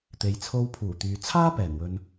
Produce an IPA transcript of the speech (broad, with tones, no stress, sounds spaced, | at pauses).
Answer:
t̪ e˨ j t͡sʰ o˧ w pʰ uː˨˩ t̪ yː˨ t͡sʰ aː˥ p ɛː˨˩ n w ɵ˨ n